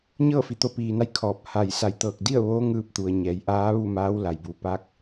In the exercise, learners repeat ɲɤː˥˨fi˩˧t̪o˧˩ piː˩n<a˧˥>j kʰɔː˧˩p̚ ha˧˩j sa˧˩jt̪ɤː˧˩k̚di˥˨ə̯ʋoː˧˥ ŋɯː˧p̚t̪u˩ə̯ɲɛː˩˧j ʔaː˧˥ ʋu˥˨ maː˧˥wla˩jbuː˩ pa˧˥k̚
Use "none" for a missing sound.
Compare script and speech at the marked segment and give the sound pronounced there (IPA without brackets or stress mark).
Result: a˧˥